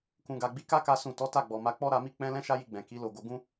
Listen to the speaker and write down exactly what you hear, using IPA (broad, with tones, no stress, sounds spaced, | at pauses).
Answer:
k ũ˨ ɡ a˨ ɡ͡b i˨˦ k a˦ k a˦ s ũ˦˨ t ɔ˨˦ t a˦˨ ɡ͡b ɔ˨ m a˧ k͡p ɔ˦ ɾ a˧ m i˦ k͡p ɛ̃˦ l ɛ̃˦ ʃ a˦ j i˧ ɡ͡b ɛ̃˨ k i˨˦ l o˦˨ ɡ o˧ ɡ ũ˦